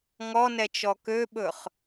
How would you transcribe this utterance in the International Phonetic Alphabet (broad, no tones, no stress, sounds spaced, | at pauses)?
ŋ ɔ n ɛ t͡ʃ ɔ k ø ɓ ɵ χ